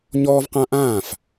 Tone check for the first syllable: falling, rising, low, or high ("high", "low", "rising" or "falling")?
high